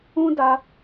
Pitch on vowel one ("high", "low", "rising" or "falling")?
high